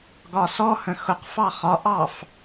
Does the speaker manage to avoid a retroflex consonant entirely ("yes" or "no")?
yes